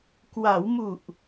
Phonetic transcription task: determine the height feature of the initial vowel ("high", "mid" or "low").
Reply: low